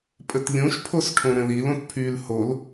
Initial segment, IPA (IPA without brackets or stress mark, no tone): pʼ